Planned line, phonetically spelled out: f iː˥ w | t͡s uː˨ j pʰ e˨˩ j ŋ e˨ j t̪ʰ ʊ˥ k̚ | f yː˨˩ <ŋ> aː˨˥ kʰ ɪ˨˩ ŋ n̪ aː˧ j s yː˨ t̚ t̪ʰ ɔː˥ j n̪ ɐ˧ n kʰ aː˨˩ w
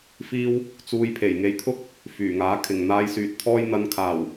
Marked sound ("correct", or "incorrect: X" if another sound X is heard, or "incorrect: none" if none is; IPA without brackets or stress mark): correct